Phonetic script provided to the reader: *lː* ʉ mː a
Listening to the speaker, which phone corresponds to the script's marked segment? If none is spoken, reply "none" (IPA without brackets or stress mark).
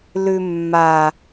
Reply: l